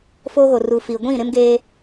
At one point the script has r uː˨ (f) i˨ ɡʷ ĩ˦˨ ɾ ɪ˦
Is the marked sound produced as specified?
yes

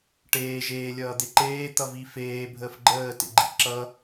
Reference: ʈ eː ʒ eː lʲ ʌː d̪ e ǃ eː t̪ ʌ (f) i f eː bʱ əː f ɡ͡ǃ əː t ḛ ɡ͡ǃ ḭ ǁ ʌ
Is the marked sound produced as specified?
no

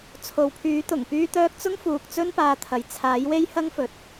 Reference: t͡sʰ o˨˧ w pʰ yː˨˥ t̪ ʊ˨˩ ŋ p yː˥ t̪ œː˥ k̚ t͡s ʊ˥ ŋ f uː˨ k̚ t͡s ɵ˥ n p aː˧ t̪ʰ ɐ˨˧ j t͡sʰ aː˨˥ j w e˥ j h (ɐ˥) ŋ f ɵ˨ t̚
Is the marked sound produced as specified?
yes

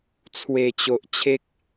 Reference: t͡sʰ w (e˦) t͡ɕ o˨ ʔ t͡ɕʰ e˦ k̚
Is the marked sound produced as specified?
no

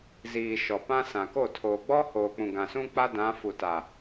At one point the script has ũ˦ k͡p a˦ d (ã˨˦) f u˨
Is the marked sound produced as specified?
yes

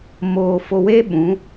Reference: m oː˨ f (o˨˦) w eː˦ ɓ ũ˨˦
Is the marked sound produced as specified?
no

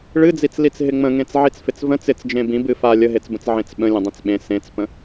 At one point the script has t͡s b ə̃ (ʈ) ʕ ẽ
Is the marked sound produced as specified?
no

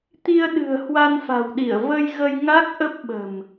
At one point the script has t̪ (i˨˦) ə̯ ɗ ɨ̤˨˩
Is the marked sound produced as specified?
no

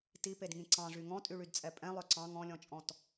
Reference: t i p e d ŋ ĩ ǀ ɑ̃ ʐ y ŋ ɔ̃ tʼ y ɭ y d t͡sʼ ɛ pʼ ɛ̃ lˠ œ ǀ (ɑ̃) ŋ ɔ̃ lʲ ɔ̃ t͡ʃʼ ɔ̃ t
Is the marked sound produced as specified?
yes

